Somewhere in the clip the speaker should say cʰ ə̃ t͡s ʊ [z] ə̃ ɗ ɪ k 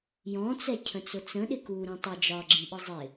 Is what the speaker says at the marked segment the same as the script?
no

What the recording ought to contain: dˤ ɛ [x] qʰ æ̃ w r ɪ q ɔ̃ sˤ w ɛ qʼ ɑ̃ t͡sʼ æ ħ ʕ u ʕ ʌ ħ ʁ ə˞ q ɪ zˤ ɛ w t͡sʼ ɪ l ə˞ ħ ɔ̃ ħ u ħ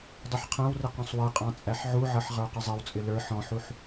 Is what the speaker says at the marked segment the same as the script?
no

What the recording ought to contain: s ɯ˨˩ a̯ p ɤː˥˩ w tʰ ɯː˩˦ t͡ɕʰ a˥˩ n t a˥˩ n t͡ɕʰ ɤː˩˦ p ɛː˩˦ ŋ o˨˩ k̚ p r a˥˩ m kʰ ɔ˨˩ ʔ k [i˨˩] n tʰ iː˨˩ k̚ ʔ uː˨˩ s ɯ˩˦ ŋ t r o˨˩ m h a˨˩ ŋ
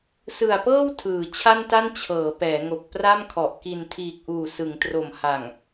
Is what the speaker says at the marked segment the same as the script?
yes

